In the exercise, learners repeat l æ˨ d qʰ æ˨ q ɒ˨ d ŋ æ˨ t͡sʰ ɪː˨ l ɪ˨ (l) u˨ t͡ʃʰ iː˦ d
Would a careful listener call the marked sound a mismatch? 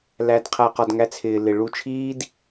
yes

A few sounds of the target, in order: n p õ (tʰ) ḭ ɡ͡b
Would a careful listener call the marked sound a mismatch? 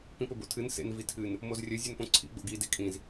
yes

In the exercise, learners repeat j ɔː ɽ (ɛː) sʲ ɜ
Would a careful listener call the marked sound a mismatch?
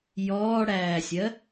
yes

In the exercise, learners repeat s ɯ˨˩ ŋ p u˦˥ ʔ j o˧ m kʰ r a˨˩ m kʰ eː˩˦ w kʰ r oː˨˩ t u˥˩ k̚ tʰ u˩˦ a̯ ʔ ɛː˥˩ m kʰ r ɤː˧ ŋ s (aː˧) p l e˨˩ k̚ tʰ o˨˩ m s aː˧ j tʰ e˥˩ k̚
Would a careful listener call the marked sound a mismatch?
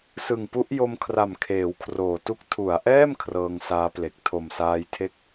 yes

